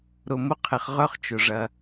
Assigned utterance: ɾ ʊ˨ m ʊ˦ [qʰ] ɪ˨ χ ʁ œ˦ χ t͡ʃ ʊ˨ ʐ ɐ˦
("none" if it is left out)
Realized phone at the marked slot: qʰ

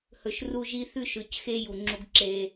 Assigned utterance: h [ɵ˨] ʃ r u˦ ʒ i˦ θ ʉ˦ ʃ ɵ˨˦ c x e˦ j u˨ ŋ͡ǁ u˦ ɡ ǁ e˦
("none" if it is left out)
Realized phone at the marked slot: ɵ˨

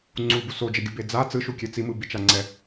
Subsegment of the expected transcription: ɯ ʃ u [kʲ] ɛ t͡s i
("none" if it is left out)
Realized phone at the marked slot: kʲ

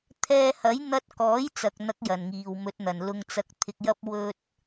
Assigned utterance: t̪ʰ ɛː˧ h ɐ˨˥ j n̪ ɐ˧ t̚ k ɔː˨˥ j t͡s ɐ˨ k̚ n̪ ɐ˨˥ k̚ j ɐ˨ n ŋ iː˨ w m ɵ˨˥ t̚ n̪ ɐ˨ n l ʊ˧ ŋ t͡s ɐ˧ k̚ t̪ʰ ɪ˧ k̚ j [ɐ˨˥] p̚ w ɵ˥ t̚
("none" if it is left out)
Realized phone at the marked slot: ɐ˥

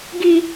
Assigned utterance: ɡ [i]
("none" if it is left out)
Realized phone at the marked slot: i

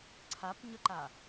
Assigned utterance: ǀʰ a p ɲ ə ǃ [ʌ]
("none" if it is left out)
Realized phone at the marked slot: a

